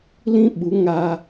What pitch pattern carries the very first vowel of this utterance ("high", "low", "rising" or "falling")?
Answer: high